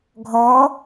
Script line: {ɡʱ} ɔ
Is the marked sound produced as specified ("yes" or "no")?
yes